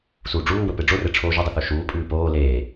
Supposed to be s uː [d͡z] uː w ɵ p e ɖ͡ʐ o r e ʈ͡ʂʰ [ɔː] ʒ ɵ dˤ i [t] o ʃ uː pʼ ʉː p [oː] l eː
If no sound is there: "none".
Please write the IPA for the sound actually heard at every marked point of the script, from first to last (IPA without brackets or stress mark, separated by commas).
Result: ɖ͡ʐ, oː, θ, oː